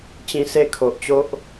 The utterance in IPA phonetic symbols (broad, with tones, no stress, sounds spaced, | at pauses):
t͡ɕ ĩ˧ s e˥˧ kʰ o˨ ʔ t͡ɕ o˦ ʔ